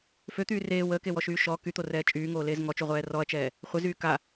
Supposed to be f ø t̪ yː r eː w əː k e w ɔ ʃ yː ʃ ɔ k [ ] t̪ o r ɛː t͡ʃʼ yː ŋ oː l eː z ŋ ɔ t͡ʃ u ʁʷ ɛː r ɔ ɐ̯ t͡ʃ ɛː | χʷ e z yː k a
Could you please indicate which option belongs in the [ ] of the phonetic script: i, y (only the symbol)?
y